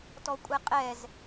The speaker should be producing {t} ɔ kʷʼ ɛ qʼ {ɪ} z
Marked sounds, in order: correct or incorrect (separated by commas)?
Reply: correct, incorrect